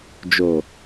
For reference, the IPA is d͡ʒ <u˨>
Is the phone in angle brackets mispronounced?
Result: yes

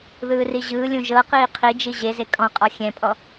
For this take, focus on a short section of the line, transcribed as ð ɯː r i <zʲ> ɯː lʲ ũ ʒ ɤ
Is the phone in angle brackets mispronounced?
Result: yes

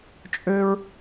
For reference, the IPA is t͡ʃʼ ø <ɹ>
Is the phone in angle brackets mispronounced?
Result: no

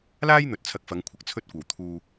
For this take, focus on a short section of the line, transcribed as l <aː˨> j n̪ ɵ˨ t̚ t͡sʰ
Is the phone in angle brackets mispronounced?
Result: yes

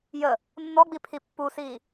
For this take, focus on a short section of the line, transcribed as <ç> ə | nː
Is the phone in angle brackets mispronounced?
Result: yes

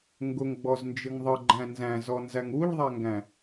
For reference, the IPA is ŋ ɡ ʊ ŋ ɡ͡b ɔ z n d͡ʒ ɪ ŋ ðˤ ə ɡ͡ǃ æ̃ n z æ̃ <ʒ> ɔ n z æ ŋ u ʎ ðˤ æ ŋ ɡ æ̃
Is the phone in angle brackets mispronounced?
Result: yes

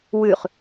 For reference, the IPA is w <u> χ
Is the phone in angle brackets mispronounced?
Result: yes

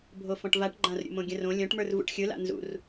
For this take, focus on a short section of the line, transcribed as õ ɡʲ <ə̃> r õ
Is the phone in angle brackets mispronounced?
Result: no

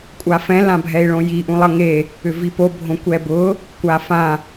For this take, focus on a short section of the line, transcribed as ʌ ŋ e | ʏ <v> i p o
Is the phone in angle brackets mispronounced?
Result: no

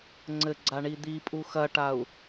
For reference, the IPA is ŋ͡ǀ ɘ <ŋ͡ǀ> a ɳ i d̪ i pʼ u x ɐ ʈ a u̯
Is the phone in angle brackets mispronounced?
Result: yes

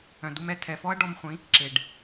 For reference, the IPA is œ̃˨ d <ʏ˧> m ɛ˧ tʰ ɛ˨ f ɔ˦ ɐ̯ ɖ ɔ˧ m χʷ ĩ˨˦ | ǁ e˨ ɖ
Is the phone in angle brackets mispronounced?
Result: yes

